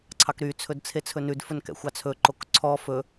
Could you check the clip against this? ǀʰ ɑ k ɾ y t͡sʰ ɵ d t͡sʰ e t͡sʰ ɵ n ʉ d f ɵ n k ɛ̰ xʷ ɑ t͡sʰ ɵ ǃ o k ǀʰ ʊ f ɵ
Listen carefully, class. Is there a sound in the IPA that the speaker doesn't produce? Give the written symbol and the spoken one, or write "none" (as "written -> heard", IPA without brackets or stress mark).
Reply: ʊ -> ɔ